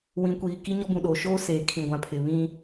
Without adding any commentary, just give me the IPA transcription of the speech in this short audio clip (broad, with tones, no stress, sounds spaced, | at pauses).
w ĩ˨ kʷ iː˨ k i˦ ɲ ɔ˦ b ũ˨ ɗ oː˨ ʃ oː˦ s eː˨ kʰ ĩ˨ ɡʷ ã˨ pʰ ɪ˨ β ĩ˦